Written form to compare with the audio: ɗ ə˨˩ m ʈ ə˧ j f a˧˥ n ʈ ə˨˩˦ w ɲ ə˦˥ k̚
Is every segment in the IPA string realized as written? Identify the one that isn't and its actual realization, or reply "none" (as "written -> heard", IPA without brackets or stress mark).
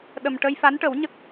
none